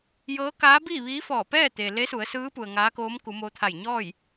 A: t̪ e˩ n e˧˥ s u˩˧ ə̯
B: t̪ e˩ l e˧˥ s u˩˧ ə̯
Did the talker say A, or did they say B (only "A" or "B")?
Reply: B